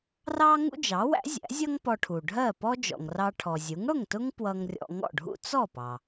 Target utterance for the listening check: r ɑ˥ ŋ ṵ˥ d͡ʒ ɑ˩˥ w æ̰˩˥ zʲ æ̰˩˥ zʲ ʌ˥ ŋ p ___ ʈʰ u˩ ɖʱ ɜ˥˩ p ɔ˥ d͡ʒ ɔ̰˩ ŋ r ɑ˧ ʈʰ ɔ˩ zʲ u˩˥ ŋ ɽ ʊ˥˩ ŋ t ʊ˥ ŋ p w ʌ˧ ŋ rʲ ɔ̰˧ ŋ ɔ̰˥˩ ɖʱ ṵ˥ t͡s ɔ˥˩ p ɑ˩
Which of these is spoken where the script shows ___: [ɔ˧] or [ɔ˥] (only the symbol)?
ɔ˧